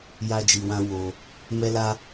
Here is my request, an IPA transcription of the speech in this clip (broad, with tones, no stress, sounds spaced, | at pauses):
j a˦ d͡ʒ i˧ w ã˦ w o˧ | m ɛ˦ l a˦